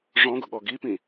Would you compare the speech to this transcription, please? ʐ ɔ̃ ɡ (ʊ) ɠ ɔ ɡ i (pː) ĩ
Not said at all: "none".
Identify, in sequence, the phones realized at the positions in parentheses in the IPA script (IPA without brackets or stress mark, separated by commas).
ʊ, p